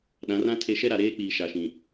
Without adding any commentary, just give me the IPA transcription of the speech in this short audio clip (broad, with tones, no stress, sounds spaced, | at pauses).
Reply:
ɗ ã˨˦ r ã˦ tʰ e˦ ʃ ɛ˦ ɾ a˨ ɾ eː˦ k͡p iː˨ ʃ a˨ ʃ ĩ˨